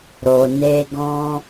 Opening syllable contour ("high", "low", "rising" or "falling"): low